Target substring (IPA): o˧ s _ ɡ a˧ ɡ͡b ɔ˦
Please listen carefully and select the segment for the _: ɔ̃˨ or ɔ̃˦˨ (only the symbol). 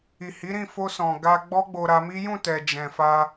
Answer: ɔ̃˨